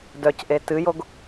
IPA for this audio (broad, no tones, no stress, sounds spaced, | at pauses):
d œ c ʔ e t ɨ j o ɡ